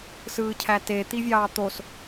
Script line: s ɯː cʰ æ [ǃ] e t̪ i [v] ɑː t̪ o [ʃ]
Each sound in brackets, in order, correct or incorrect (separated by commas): incorrect, incorrect, incorrect